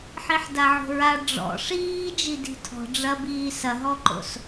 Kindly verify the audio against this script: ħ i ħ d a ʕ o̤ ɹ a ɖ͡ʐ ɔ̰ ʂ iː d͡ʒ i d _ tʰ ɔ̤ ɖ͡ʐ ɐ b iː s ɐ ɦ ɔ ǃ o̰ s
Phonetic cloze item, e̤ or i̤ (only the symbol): i̤